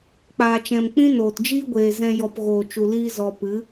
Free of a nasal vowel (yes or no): no